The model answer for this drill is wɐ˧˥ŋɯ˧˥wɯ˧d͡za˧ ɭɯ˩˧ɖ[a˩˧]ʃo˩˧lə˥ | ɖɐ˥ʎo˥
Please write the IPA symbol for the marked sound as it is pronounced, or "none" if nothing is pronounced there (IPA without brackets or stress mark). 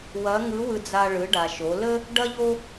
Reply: a˩